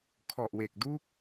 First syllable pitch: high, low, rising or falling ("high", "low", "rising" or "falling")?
low